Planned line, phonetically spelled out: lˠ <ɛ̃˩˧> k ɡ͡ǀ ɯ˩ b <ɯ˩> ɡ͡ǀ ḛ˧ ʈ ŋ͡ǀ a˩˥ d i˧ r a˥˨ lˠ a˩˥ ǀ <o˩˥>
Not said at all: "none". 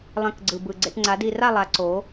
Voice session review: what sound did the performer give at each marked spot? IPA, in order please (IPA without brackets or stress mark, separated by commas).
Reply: ɛ̃˧˩, ɯ˩, o˩˥